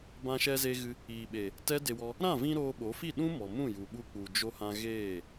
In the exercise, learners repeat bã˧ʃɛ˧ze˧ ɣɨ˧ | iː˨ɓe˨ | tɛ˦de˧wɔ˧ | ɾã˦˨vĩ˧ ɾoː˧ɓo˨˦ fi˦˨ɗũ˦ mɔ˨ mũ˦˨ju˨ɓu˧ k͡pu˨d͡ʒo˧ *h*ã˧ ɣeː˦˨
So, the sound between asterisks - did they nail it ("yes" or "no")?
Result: yes